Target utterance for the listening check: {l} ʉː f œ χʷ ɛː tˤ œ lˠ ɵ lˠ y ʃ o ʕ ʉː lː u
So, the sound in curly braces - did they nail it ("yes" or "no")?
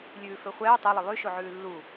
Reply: no